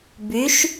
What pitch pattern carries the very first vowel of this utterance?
rising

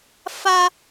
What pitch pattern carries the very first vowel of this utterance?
high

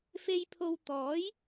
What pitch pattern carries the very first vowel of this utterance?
low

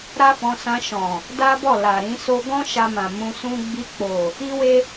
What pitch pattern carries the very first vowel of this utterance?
high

